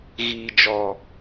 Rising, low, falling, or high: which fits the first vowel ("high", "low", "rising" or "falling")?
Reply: low